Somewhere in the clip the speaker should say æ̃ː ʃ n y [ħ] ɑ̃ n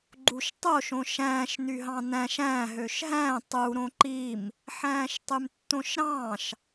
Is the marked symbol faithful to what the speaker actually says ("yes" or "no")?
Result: no